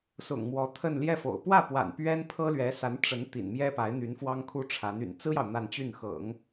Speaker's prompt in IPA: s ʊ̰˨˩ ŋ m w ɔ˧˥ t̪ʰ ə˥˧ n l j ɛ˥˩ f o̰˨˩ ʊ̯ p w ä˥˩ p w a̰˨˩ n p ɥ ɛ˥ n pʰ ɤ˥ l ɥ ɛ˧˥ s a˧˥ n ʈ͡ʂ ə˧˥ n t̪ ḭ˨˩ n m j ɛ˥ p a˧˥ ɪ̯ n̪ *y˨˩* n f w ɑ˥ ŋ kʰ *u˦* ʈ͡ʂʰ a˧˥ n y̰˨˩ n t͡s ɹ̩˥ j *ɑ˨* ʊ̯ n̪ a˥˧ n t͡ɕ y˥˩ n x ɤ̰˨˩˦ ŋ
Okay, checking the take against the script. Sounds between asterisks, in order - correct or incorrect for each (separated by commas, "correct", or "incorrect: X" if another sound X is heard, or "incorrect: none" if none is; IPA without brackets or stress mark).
incorrect: y˧˥, incorrect: u˥, correct